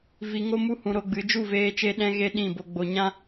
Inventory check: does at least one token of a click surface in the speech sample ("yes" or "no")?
no